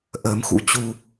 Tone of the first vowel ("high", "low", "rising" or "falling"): rising